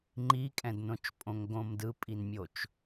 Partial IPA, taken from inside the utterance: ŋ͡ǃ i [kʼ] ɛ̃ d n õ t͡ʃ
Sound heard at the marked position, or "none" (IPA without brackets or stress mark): kʼ